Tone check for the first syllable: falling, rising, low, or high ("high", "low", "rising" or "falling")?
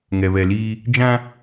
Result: low